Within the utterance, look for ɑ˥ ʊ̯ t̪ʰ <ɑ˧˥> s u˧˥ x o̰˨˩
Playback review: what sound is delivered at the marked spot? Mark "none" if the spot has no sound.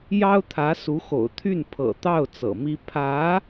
ä˧˥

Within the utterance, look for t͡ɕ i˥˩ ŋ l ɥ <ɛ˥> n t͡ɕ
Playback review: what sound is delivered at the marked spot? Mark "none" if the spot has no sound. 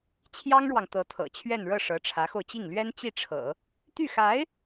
ɛ˥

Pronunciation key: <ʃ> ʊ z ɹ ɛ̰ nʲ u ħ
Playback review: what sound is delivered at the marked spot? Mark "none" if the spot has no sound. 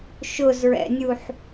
ʃ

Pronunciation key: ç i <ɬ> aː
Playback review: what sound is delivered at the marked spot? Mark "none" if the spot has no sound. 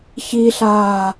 ɬ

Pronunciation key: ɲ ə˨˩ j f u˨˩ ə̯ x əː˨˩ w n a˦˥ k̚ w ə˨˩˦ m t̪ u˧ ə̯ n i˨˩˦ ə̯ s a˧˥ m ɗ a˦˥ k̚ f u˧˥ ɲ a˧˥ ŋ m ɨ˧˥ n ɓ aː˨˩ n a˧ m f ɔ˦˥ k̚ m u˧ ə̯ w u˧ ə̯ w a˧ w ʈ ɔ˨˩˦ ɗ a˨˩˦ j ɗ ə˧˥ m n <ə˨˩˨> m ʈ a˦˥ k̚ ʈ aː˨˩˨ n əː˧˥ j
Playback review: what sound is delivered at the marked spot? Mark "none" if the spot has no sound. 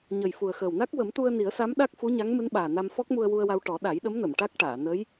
ə˨˩˨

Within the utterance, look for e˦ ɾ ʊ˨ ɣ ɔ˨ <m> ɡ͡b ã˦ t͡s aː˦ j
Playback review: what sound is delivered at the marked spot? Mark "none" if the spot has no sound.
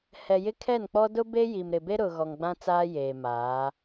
ŋ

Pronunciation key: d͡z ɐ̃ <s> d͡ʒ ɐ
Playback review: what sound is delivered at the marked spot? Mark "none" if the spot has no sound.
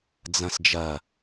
s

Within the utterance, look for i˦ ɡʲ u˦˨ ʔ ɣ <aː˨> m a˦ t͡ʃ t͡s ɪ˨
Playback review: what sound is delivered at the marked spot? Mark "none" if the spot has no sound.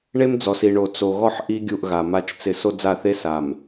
a˨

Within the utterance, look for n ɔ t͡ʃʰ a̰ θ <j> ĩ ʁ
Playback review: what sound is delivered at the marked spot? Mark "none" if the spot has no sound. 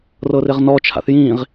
j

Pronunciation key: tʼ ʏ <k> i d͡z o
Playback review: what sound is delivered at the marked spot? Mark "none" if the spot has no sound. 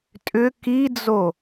k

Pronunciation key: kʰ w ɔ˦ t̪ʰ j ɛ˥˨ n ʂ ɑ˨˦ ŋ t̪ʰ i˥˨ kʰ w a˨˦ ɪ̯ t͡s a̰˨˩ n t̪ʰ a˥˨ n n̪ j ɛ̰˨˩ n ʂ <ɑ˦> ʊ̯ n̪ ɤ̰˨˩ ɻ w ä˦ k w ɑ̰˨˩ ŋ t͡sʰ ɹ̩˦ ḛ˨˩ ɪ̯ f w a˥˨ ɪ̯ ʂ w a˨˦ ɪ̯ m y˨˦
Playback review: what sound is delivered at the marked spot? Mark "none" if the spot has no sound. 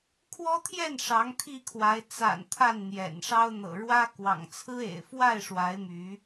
ɑ˦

